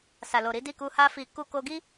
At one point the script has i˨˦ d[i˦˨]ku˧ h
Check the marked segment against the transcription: correct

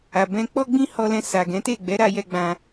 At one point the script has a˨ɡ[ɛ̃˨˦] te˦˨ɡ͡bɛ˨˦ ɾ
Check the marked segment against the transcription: correct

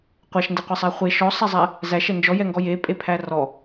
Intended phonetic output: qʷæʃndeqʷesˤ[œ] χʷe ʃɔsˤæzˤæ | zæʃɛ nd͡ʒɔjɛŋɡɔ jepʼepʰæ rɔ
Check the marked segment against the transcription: incorrect: æ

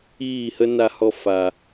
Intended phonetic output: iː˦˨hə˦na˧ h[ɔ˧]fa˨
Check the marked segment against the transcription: correct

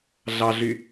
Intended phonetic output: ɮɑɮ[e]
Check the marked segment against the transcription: incorrect: y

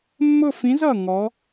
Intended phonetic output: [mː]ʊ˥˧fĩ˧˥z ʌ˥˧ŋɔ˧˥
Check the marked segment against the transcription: correct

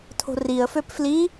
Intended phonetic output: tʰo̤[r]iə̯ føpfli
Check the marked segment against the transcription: correct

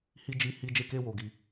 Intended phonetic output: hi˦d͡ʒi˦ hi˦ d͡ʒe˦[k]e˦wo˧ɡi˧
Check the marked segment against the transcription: correct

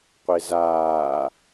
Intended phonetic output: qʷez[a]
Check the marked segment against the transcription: incorrect: aː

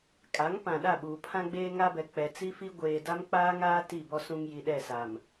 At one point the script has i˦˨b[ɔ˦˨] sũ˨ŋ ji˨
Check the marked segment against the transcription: incorrect: ɔ˦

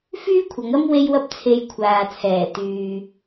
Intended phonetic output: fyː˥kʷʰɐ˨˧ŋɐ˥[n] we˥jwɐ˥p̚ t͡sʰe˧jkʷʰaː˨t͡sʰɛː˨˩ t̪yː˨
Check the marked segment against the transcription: incorrect: m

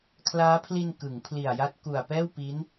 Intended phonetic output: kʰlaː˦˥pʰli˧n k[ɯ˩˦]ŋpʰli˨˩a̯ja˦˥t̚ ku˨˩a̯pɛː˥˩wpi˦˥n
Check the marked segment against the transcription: correct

